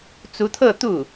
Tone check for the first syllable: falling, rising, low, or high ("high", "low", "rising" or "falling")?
rising